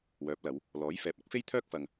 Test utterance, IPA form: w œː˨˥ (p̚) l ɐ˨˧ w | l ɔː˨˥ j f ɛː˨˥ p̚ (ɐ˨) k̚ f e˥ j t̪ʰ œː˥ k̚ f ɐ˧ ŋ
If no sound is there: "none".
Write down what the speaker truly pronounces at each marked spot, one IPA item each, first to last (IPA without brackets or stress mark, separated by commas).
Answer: p̚, ɐ˨˥